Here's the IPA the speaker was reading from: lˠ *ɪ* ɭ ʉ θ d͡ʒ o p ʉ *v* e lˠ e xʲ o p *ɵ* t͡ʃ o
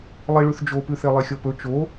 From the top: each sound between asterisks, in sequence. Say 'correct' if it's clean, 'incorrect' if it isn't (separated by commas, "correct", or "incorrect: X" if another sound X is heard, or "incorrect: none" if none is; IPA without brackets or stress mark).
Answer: incorrect: i, incorrect: θ, correct